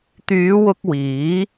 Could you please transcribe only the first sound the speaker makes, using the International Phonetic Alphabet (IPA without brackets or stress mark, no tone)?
t̪